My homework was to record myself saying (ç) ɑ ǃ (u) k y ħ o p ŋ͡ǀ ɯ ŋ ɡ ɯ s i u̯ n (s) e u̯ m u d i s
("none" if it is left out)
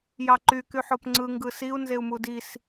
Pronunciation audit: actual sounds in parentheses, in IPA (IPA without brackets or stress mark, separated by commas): j, y, z